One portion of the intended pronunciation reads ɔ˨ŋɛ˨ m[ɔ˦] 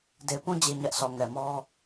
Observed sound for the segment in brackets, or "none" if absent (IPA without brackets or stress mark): ɔ˦